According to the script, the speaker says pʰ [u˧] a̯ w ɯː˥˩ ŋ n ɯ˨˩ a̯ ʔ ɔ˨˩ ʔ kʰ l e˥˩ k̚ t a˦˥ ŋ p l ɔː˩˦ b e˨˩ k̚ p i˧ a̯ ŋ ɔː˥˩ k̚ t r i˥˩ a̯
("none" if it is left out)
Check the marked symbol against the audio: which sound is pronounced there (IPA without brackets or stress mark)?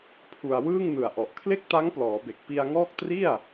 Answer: u˧